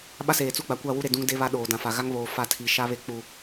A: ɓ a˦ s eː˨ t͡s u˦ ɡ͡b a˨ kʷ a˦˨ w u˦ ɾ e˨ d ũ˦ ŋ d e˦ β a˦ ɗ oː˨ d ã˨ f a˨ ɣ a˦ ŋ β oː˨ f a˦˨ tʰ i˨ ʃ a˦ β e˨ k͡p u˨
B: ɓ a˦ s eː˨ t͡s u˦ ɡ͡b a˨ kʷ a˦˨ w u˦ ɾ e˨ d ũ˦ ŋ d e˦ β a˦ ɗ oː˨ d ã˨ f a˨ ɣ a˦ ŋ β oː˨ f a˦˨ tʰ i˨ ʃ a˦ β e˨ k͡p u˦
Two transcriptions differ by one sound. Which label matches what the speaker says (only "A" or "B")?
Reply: A